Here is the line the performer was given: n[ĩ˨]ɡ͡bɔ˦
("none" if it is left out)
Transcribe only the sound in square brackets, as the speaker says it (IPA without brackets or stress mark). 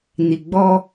i˨